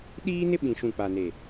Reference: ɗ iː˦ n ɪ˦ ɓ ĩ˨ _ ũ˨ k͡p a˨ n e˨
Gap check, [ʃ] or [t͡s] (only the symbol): ʃ